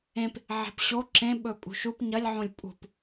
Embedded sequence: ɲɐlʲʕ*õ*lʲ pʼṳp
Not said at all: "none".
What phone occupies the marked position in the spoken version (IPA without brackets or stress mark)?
õ